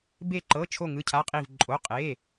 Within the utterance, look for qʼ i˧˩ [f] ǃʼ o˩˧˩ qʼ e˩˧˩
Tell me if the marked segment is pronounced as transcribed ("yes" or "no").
no